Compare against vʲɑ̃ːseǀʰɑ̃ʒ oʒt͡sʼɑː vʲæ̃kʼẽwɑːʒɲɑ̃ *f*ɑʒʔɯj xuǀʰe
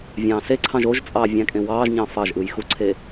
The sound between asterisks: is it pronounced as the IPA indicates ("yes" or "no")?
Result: yes